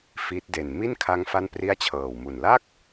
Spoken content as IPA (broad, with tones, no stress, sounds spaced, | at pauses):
f i˦˥ t̚ d e˨˩ n m i˥˩ n kʰ a˦˥ ŋ f a˥˩ n p r i˥˩ a̯ t͡ɕʰ ɤː˨˩ w m u˨˩ n l a˥˩ k̚